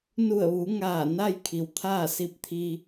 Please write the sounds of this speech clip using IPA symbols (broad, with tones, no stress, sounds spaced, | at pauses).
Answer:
n u˧˩ ə̯ ʋ u˩˧ ŋ aː˧˩ n a˥˨ j kʰ i˩˧ w t̪ʰ aː˥˨ s i˧ p̚ t̪ʰ i˧